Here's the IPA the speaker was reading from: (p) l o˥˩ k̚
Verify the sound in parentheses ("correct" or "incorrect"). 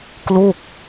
incorrect